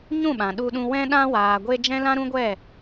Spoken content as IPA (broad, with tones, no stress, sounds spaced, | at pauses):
ɲ ũ˦˨ ɓ ã˨ ɗ u˧ ɗ ũ˧ w ɛ̃˧ ɗ ã˧ w aː˨ ɡʷ e˧ d͡ʒ ɛ̃˦ l ã˦ ɾ ũ˦ ɡʷ ɛ˦˨